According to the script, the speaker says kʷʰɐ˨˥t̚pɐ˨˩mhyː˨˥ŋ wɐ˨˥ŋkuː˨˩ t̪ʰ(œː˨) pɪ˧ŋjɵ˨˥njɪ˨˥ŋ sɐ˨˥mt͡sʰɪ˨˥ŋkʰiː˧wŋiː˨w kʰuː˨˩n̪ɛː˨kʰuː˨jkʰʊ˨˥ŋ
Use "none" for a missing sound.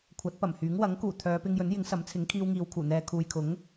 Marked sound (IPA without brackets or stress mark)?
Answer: œː˨˧